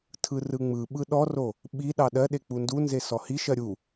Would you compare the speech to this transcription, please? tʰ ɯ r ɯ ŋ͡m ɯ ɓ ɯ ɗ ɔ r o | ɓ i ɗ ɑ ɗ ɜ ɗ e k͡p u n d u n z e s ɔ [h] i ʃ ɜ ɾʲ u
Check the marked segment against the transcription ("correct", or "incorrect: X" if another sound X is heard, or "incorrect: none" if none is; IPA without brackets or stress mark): correct